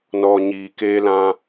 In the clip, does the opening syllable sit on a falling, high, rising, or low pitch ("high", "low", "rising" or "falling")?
low